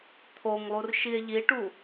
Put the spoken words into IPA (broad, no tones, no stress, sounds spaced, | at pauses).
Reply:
t̪ʰ o ŋ lˠ u r ʃ i e̯ ʎ i ʈ u